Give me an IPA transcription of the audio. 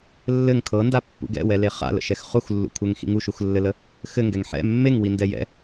lː ɘ ŋ kʰ ɤ n d a pː ṵ ɡ ɛ̰ w ɛ l e χ a̰ l ə̰ ʃ ɛ x χ u x lː ṵ kʷʰ ɘ ŋ x ḭ ŋ u ʃ u x lː ɘ l ə | x ɘ ŋ ɡ ɛ ŋ ħ ɛ̰ mː e ŋ w i n d ɛ j ɛ̰

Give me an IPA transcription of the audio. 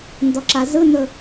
n d ɔ ǁ a z ɯ n ɵ

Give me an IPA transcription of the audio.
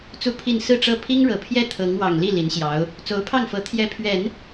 t͡s u˥˧ pʰ i˥˧ n s ɹ̩˥˧ ʈ͡ʂ ɤ˥˩ pʰ i˥ ŋ ɻ ɤ˨˩ pʰ j ɛ˥˩ t̪ʰ ɤ˧˥ ŋ w ɑ˨˩ ŋ l i˥˩ l i˧˥ n ɕ j ɑ˧˥ ʊ̯ | t͡s o˧˥ ʊ̯ pʰ ɑ˥˩ ŋ f ɤ˧˥ t̪ʰ j ɛ˧˥ pʰ ɥ ɛ˨˩˦ n

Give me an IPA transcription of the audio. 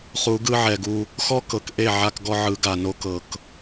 χ u˨˦ ɡ ɯ˦ ʕ ɛ˨ ɡ u˦ | x ɔ˦ k ɤ˨ k ʔ e˦˨ ʕ a˦ k ɡ ɔ˦ ʕ ɯ˨˦ ɡ a˨ n o˦ k ɤ˨ k

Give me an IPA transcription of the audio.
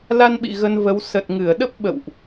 l a˧ n ɓ ḭ˧˨ ɣ ə˧ n v ə˨˦ w s ə˨˩ t̚ ŋ ɨ˧˩ ə̯ ɗ ə˦˥ p̚ ɓ ə̰˧˨ w ʔ

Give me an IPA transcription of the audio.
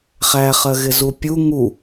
χ æ χ ɜ ɣ ɪ z u pʲ u ŋ u

